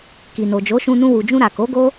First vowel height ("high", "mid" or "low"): high